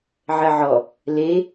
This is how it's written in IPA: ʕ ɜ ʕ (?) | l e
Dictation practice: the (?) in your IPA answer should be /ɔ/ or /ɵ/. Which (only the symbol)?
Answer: ɔ